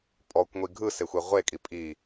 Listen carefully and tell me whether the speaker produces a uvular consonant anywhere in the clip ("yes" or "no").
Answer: yes